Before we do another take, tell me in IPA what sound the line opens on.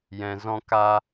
j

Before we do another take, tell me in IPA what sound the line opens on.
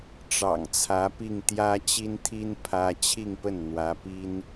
ʈ͡ʂ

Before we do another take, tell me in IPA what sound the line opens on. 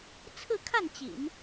t͡sʰ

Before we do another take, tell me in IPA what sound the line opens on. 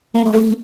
ŋ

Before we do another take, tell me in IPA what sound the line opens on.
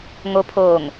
ŋ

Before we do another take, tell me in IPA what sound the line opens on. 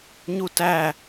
ɲ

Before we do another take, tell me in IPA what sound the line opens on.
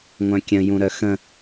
ŋʷ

